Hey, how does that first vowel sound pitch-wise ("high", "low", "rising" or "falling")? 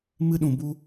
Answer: high